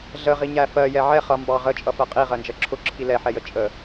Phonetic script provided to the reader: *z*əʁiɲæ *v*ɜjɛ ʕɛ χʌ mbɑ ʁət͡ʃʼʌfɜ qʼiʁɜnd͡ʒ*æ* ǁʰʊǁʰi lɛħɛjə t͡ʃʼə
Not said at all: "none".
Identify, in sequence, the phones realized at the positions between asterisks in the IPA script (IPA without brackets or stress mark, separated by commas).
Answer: ɮ, f, ɜ